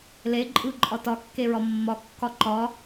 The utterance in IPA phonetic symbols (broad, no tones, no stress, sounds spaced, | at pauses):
l e ǃʼ ɯ ǃʼ ɒ t ɒ kː e ɹ ɒ mː ɒ kː ɒ ǃ ɒ